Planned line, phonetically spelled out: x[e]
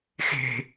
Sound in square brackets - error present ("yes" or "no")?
yes